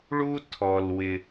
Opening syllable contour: high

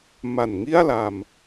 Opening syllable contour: low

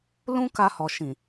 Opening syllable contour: high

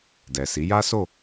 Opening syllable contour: low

